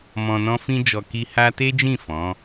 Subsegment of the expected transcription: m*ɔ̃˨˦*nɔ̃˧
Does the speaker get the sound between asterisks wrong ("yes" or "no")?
yes